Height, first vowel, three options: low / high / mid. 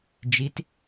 high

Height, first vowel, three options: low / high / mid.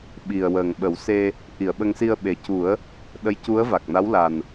high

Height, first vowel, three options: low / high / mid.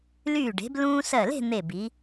high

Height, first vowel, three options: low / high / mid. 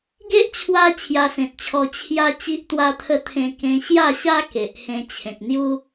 mid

